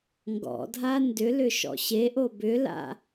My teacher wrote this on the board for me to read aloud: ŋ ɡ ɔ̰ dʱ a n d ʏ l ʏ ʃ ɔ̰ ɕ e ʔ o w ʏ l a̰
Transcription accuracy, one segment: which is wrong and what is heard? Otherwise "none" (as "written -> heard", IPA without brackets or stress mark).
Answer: w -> b